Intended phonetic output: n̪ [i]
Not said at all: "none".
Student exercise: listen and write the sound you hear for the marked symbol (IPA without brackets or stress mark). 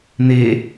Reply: e